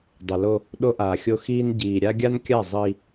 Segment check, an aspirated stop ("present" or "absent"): absent